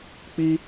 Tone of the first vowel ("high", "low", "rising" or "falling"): high